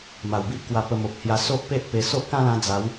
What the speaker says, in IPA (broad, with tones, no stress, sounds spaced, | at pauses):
m a˨˩ w b i˦ ʔ k w a˧ p ə˧ m o˨ p̚ h j a˧ s o˦ ʔ p e˦ ʔ p e˧ s o˦ ʔ k ã˦ l ã˧ d͡z a˨˦ w